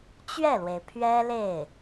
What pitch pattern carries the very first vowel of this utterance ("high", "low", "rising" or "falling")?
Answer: falling